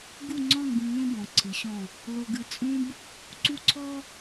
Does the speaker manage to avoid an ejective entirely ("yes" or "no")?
no